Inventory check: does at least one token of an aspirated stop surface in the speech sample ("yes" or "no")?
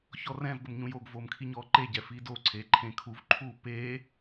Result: yes